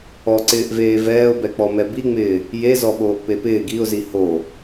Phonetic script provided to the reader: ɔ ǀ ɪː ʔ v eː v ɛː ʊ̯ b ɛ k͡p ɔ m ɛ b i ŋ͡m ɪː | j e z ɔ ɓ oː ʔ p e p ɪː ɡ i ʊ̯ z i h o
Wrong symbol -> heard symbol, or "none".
none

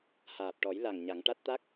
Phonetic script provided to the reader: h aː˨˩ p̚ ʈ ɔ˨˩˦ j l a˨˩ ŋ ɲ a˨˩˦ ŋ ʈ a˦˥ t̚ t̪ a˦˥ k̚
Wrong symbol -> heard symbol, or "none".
none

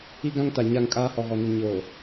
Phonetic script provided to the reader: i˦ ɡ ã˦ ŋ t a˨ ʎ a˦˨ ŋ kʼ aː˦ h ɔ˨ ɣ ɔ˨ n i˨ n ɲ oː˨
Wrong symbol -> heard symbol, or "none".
ʎ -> ɲ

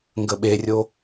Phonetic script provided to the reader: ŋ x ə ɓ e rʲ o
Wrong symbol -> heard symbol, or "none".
x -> ɡ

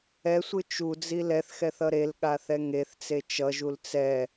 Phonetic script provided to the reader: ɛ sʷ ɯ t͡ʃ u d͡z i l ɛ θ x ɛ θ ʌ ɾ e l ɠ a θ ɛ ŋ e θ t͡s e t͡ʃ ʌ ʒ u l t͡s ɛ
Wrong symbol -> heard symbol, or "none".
none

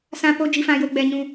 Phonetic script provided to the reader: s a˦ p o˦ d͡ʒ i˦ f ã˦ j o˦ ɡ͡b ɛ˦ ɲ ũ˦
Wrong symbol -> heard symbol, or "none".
a˦ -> ã˦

